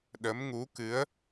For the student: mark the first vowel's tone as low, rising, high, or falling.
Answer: rising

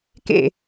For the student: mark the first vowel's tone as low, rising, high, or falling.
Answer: falling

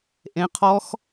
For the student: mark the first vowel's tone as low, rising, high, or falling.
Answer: rising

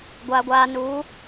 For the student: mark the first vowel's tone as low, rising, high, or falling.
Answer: high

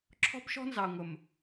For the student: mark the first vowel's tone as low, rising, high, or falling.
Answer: high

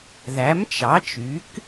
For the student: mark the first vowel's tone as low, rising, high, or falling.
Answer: rising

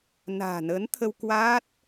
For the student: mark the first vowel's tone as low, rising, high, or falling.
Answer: low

